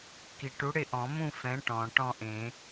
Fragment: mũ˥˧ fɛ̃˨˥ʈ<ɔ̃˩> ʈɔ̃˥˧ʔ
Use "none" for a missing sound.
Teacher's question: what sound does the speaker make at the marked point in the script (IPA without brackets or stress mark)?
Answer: ɔ̃˩